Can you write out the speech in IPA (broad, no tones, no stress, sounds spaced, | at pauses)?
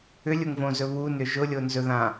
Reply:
ʏ lʲ ʊ ŋ v õ z ɵ β u n ʏ ʒ ʊ lʲ o n z ɵ ð ã